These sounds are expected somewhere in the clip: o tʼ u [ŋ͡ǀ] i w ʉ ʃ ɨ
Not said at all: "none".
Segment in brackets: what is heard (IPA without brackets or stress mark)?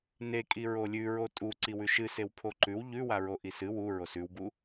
ǀ